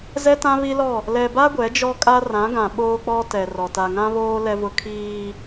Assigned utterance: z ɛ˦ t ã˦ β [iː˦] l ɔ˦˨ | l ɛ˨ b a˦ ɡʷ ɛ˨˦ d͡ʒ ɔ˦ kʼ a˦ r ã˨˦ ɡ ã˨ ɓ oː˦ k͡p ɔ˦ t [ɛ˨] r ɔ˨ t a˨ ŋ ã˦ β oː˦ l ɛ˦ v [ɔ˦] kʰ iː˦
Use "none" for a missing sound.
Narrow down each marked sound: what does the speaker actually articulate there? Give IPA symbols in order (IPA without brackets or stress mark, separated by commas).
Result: i˦, ɛ˨, ʊ˦